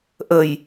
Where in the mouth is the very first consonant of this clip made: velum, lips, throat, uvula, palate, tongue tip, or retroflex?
throat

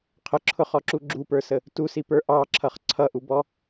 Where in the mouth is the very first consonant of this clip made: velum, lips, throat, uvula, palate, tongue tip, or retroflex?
uvula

